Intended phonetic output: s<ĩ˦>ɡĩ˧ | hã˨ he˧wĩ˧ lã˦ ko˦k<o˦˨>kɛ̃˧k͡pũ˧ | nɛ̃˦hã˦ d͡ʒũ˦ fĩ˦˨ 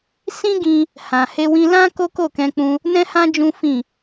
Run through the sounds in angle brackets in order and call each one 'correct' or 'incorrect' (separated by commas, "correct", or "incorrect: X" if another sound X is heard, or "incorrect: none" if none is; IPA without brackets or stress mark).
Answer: correct, correct